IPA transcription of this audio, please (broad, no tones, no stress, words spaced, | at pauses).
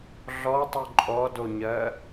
ɮɔtˤu ǃʼɔdoɲɜ